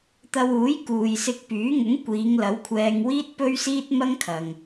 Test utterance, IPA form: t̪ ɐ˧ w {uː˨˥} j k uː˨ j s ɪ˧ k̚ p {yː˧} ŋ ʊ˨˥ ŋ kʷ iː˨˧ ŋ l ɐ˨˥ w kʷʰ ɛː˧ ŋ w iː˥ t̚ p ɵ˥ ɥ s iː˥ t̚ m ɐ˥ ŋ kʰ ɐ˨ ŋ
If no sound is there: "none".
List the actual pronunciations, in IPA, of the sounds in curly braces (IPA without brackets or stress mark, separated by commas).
uː˨˥, yː˨˥